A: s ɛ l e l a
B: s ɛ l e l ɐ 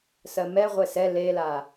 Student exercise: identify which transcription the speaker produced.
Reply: A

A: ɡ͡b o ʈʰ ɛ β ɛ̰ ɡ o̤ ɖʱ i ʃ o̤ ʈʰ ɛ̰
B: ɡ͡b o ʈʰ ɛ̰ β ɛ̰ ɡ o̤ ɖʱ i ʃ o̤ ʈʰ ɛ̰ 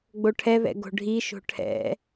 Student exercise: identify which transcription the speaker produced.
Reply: A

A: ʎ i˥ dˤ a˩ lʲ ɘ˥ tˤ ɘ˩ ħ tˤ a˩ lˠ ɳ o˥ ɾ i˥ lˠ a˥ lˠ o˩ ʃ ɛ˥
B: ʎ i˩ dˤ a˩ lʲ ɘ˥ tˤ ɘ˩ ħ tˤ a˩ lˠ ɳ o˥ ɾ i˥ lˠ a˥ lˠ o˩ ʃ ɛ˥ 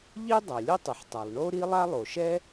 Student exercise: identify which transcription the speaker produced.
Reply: A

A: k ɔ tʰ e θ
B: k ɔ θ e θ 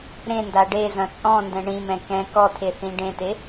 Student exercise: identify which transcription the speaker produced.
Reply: A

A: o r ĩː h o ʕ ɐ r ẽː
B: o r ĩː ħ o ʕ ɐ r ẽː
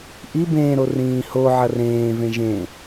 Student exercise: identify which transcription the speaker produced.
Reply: A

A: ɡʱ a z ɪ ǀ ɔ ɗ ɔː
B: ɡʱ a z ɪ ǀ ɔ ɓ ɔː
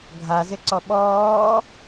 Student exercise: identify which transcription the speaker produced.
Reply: B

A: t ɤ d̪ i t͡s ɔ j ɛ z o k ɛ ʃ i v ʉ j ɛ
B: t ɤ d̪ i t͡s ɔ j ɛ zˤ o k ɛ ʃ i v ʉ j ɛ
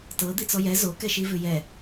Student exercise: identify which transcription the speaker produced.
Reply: A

